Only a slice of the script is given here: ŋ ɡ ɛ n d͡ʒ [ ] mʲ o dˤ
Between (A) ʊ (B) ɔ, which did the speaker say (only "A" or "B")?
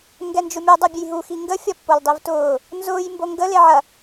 A